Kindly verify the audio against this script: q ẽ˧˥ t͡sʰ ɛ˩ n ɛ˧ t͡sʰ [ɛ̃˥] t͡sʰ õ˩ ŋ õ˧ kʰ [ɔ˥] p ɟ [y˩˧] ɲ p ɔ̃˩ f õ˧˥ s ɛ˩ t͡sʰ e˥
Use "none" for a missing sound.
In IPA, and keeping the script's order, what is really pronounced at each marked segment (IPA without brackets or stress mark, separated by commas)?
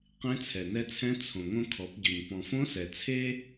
ɛ̃˧˥, ɔ˩˧, y˩